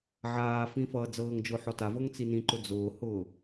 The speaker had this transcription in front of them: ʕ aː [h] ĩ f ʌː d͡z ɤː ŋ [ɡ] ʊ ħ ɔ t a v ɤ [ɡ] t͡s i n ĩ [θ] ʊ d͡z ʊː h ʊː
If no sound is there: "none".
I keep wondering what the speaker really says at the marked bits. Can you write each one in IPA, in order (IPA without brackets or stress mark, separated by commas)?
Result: f, d͡ʒ, ŋ, ǃ